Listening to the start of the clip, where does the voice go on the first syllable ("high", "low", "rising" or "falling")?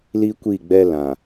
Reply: high